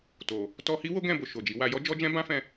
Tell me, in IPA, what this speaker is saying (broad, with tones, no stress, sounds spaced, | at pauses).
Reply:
t o˨ | t ɔ˧ h i˦ w o˦ ɡ ɛ̃˦˨ b o˨ ʃ o˨ d͡ʒ i˨˦ w a˧ j ɔ˦ d͡ʒ ɔ˦ d͡ʒ ɛ̃˦ b ã˦ f ɛ̃˧